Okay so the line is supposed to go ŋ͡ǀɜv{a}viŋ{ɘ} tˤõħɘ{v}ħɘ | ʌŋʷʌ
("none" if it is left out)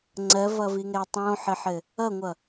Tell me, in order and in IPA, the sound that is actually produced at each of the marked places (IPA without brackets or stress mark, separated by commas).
ʌ, ɛ, none